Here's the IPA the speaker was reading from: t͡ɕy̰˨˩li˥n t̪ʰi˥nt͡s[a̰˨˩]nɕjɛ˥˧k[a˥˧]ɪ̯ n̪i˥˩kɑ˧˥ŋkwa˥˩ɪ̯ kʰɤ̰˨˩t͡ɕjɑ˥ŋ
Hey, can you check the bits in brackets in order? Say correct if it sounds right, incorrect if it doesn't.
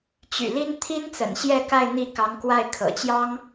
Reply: incorrect, correct

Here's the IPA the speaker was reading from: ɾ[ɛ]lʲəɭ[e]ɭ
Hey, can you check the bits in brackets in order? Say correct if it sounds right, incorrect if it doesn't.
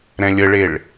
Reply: incorrect, correct

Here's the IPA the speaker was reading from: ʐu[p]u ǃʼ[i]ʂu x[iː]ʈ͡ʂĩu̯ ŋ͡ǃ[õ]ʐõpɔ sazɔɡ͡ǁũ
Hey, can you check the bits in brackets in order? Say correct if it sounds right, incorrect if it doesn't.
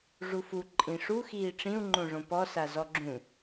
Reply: incorrect, incorrect, correct, correct

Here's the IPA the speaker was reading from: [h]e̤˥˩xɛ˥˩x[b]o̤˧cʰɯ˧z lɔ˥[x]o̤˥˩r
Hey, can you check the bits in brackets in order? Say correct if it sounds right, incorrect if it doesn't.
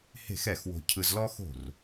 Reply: correct, incorrect, correct

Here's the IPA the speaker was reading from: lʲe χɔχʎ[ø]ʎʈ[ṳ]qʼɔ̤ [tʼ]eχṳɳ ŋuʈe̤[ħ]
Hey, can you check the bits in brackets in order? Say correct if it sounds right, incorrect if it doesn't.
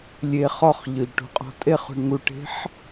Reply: correct, correct, correct, correct

